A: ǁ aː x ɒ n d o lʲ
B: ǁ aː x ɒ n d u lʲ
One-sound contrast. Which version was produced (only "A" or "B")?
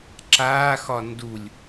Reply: B